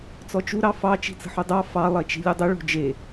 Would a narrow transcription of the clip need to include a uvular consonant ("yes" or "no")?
no